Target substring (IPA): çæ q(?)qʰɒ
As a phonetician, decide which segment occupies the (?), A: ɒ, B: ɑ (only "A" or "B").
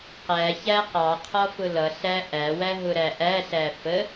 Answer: B